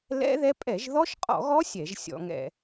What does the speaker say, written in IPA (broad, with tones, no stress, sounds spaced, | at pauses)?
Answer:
l ɛ̰˦˥ ð ɛ˦˥ pʼ ɛ˧˩˧ ʒ ð ɔ˦˥ ʃ qʼ ɔ̰˧˩˧ ɣ ɔ˦˥ sʲ ɛ˧˩˧ ʒ sʲ ɔ̰˧˩˧ ŋ ɛ̰˧˩˧